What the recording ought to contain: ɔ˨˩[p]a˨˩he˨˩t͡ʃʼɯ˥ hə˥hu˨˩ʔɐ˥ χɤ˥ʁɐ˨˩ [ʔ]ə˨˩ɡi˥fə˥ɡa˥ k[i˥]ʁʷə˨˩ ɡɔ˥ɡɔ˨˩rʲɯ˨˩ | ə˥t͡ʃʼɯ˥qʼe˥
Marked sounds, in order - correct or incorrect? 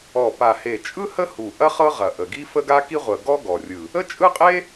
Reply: correct, correct, correct

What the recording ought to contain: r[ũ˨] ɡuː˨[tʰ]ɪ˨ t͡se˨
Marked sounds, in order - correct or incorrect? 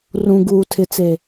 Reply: correct, correct

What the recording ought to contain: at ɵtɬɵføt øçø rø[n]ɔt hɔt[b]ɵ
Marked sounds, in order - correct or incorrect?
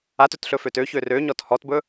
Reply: incorrect, correct

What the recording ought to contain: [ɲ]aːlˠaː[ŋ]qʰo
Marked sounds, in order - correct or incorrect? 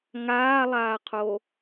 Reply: incorrect, incorrect

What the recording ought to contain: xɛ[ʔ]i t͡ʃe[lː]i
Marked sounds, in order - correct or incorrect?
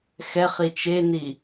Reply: incorrect, incorrect

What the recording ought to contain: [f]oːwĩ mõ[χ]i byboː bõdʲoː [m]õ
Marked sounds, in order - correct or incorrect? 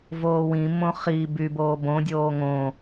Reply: incorrect, correct, incorrect

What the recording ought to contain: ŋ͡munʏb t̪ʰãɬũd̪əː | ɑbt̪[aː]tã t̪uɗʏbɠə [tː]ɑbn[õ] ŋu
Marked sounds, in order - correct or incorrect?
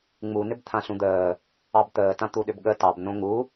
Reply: incorrect, incorrect, correct

